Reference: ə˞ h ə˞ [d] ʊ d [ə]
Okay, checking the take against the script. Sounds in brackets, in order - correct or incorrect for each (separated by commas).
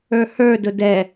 correct, incorrect